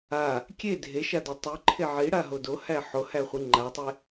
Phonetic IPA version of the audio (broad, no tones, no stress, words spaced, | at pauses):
a | kʲe dʱeʃadæ tˤiǃʰe ʕiɽaɦo dohæ ħohæχʷi ŋ͡ǃatˤe